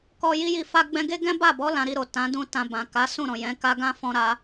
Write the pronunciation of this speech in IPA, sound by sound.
k ɔ˧ j i˦ j i˦˨ f a˧ ɡ͡b ɛ̃˧ ɡ e˦ ɡ ɛ̃˦ b a˦˨ b ɔ˨˦ l ã˧ ɾ i˧ ɾ o˨ t ã˨˦ d ũ˦ t ã˧ b ã˨ k a˨˦ s ũ˦˨ ɾ ɔ̃˨ j ɛ̃˨˦ k a˦ ɡ ã˦ f ɔ̃˧ ɾ a˧

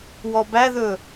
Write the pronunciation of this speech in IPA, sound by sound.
w ɔ b æ ð ɵ

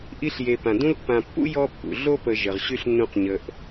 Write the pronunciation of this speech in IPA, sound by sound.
ʔ i˥ ɬ j e˨ p ã˩ d ũ˦ l pː ã˨ pː ṵ˥ j ɔ˥ pː ṵ˩ ɮ o˥ p ə˨ ʒ ə˩ ʁ ɕ y˥ ɬ nː ũ˦ q ɲ ə˨ ʔ

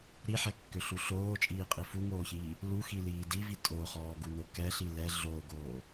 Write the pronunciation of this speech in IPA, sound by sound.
ɾ i ħ ɛ kː ø ɬ u ɬ oː t͡ʃʼ iː qʼ i f u ŋ oː ç iː | l u x i l iː d i v i tʼ o χ ɔː ɡ u n o k ɛ ɬ i l ɛ ɮ o ɡ oː

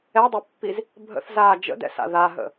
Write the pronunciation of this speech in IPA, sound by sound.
ɛ dˤ o pː i z | bʱ ə̰ θ z aː d͡ʒ ə̰ d ɛ̰ s a̰ ð a ɦ ə̰

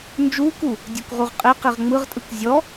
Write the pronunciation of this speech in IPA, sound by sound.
n d͡ʒ uː k u | dʲ o k ʁ u ʁ qʼ e q i ʁ ŋ͡m ɯ ʁ tʼ ɯ k zʲ ɔ

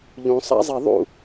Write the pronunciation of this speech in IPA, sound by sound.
ʎ ũ sˤ a̰ zˤ e ðˤ ṵ

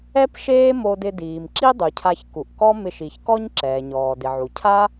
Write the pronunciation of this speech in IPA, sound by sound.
ɛ˥ p ʃ eː˥ m o˧ d ɪ˧ d iː˩ m ǁ i˥ dˤ u˩ cʰ a˧ ç k u˩ ʔ k ɔ˥ m ɪ˧ ʃ i˩ ç k ɔ˥ ɲ ǁ ɛː˩ ɲ ɔː˩ d ɪ˩ ʕ u˩ cʰ a˥

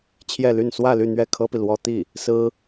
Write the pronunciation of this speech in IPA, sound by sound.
t͡ɕʰ j ɛ˥˧ l y˥˧ n s w ä˥˧ l y˥˧ n̪ ɥ ɛ˥˩ kʰ ɤ˥ p i˨ l w ɔ˥ t̪ i˥˩ | s ɹ̩˥

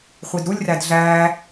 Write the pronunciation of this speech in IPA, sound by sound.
χʷ i d ɾ u lʲ r æ d ɮ æ

